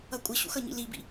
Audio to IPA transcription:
ʌkʷʼəɕṵx ʌɲḭlibḭ

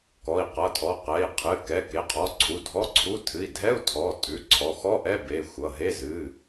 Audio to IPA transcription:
kɔ˩˧˩i̯qʌ˩˧˩tʰɔ˩˧˩ qɛ˩˧˩i̯ qʰɨ˩˧˩kɛ˩˧˩ ke˩˧˩qʰɔ˩˧˩ǀʰu˩˧˩ dʱɔ˧˥˧ǀʰu˧˥˧ tʰɨ˩˧˩i̯dʱɛ˧˥˧u̯tʰɔ˩˧˩ tʼʉ˩˧˩ǀʰɔ˩˧˩xɔ˧˥˧ʔɛ˧˥˧ be˩˧˩ xʷʌ˩˧˩ɦe˧˥˧ zɨ˩˧˩

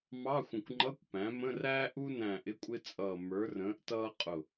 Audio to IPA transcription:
mɑ˧˥˧xʷə̃˧˩kʷŋ͡ǃʌ˧˥˧kʷpæ̃˩˥ mə̃˧˥˧ræː˥ ʔu˥næ̃˧˩ ʔɪ˧˥˧kʷʼɪ˥t͡sʼʌː˧˩ mə˞˩˥rə̃ː˩˥ʔ tʌː˥qʼʊ˧˩

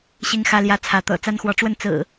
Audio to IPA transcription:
ɕi˦ŋxä˦ljä˦ t͡sʰä˨˦t̪ɤ̰˨˩ t͡sa˦nxwɔ˨˦ʈ͡ʂwə˥˨n t͡sɹ̩˨˩

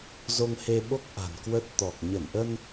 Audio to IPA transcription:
zo˧ŋhe˧ɓo˦˥k̚ ʔa̤˨˩nkwə˦˥t̚t̪ɔ˨˩k̚ ɲə˧˩nʔə˧n

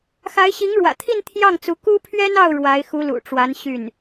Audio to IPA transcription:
xa˧˥ɪ̯ɕi˧˥ŋɻwä̰˨˩t̪ʰi˥˧n t̪ʰjɑ˥˩ŋt͡su˧˥ ku˥pʰɥɛ˥nɑ˥˩ʊ̯ ɻwa˧˥ɪ̯xu˧˥lṵ˨˩ʈ͡ʂwa˧˥n ɕy˥˩n

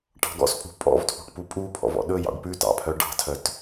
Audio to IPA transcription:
ʈɑ̤ɡɔ̰spʼṳ pʼɔ̰vtʰṳʈ pupʼupʰɔ̰v ɔ̰ɗɵjɑ̰ɖ pʉ tɑ̰pʰœ ɖɑ̤tʰœt

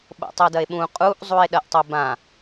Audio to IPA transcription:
ɓo̰tˤødɐe̯ɓũ qʼuʔ zˤue̯ɗɐʔtˤobã

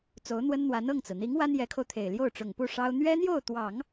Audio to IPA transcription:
t͡so˧˥ʊ̯n̪wə˥nn̪wa˧˥n ɤ˥˩ŋt͡sɹ̩˩n̪i˧˥ŋ wa˥njɛ˧˥kʰo˧ʊ̯t̪ʰe˨˩ɪ̯ ljo˥˩ʊ̯ʈ͡ʂʊ˨˩ŋpu˥˩ ʂɑ˥ʊ̯ n̪ɥɛ˥n̪jo˥˩ʊ̯t̪wɑ˨˩˦ŋ

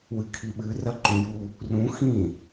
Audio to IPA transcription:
wɨkʰiɓɨ rɐǃũju | rũ xĩ

